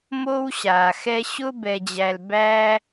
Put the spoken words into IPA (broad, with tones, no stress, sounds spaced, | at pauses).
m o˥ w ɕ aː˧ x ɛ˥ ɕ ʊ˥ b ɛ˧ d͡ʑ æ˧ l b æː˥